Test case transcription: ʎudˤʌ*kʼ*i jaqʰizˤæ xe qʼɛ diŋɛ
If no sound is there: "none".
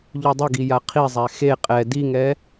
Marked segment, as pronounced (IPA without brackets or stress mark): ɡ